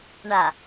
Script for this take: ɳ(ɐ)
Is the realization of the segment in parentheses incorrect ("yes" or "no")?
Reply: yes